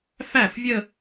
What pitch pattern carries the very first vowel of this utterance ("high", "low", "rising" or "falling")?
falling